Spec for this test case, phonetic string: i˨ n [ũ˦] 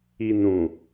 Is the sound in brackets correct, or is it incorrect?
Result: incorrect